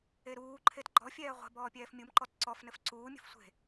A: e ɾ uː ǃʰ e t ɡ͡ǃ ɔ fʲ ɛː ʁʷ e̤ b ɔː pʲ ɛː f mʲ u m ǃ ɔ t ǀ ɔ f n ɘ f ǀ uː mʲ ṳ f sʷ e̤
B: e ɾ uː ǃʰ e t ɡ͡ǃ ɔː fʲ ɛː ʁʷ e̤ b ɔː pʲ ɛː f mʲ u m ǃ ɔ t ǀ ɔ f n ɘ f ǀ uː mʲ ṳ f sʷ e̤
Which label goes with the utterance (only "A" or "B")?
A